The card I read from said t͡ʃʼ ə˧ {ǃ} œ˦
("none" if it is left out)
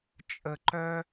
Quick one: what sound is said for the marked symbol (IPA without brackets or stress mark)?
ǃ